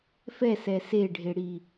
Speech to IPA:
f ɛ s ɛ s e ɖʱ e ɽ i

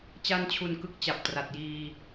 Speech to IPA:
t͡ɕ a˥˩ n t͡ɕʰ u˧ n k ɯ˦˥ k̚ t͡ɕ a˨˩ p̚ t r a˨˩ t̚ j iː˧

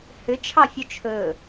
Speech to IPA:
h ʏ t͡ʃʰ ɑ fʲ o t͡ʃʰ ɵ

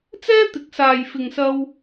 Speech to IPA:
t͡s ɛː˥ t̪ ɪ˨˥ k̚ s aː˨ j f ɪ˨ ŋ s ɐ˧ w

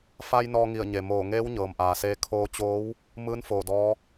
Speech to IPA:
f a˧ j n ɔː˧ ŋ i˧˩ ə̯ ɲ e˩ m oː˧˩ ŋ eː˧˥ w ɲ ɤː˩ m ʔ aː˩ s eː˧ kʰ oː˧ t͡ɕ oː˧˥ w | m ɯː˧˥ n f oː˧˩ d ɔː˧˥

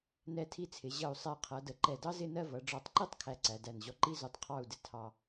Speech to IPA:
n ɛ˧˩ tʰ i˧ t͡sʰ ɪ˩˧ ʑ ʌ˧˩ u̯ sˤ æ˧˩ qʰ ʌ˩˧ d ə˩˧ ǃ ɛ˧˩ d ɑ˥ z ɪ˥˧ n ɜ˥˧ v ʌ˩˧ ɖ͡ʐ ɔ˧˩ tˤ ǃ i˥ tˤ kʰ æ˧ ǀ æ˩˧ d æ˧˩ n ʑ ɔ˧ ǃ i˥ z u˧ tˤ qʰ ɑ˥˧ u̯ d ɪ˥ tʰ ɑ˧

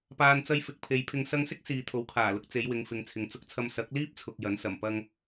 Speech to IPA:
p aː˨ n t͡s ɐ˧ j f ɪ˨˥ k̚ pʰ e˨˧ j pʰ ɪ˧ ŋ s ɐ˧ ŋ s ɪ˥ k̚ s iː˨ t̪ʰ o˨˥ w kʰ aː˨˩ l ʊ˧ k̚ t͡s e˨˧ j w ɪ˨˧ ŋ f ɪ˨ ŋ t͡sʰ ɪ˨˧ ŋ t͡s ʊ˧ k̚ t͡sʰ ɐ˧ m s ɐ˨˥ k̚ l iː˥ p̚ t͡sʰ ʊ˨ k̚ j ɐ˨˥ n s ɐ˨˩ m p ɐ˥ ŋ

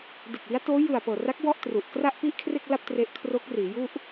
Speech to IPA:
d e˨˩ k̚ w i˦˥ a̯ t oː˦˥ j ɯ˨˩ a̯ p ɤː˨˩ r a˦˥ k̚ w ɔ˥˩ ʔ t r u˨˩ ʔ k r a˥˩ ʔ p i˥˩ ʔ kʰ r e˥˩ k̚ l a˥˩ p̚ t r e˦˥ ʔ kʰ r o˦˥ k̚ r iː˩˦ j u˥˩ ʔ

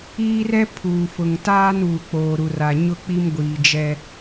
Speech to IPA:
iː˦ r ɛ˦ pʰ uː˨ f ʊ˨ ŋ t aː˦ n uː˨ k͡p oː˨ ɾ u˨ r a˨ ɲ ʊ˦ k͡p i˦ m ɡʷ iː˨ d͡ʒ ɛ˦

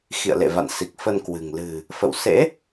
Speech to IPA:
x ḭ˧˨ ə̯ l ḛ˧˨ v a̰˧˨ n s i˨˩ k̚ f ə˧ n k w ɨ̤˨˩ ŋ l ɨ̤˨˩ | f ə̰˧˨ w s ḛ˧˥

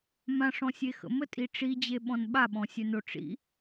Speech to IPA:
m ã ʂ ɔ̃ sʲ e x ə̰ m ə tʼ i ʈ͡ʂ i d͡ʑ e ɓ ɔ̃ n ɓ a ɓ ɔ̃ sʲ œ n o ʈ͡ʂ ḭ

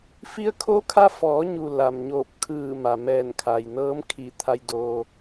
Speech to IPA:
f i˧ ə̯ kʰ o˧˥ kʰ a˧ f ɔː˩˧ ɲ u˩ l a˩ m ɲ oː˧˩ p̚ kʰ ɯː˧˩ m a˩ m ɛː˧˩ n kʰ a˩ j n ɤː˧˥ m kʰ i˧˩ t̪ʰ a˧ j d oː˧

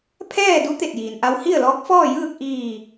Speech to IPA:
pʰ ɛː˥˨ d u˧˥ t̪ e˧˩ t̚ j iː˩ n ʔ a˧ w h i˥˨ ə̯ l ɔː˧˥ k̚ f ɔː˥˨ j ɯː˥˨ k̚ ʔ iː˧˩

